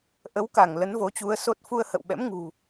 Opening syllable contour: rising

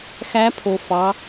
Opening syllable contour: rising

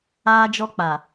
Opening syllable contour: high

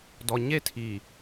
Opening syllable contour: low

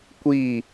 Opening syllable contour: falling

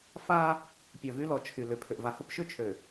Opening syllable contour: high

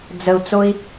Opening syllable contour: low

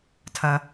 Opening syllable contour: low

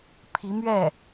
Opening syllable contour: rising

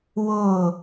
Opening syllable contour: falling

